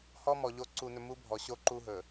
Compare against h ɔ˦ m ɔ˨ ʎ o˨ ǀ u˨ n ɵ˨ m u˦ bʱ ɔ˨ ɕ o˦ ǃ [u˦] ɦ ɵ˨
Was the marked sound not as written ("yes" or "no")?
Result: no